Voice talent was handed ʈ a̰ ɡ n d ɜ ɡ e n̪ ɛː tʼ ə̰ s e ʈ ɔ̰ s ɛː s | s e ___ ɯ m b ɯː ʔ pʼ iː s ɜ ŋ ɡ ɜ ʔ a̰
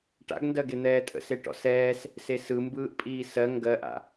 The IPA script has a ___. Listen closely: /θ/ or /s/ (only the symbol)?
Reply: s